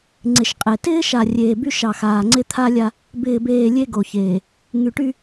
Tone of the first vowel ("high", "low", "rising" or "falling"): low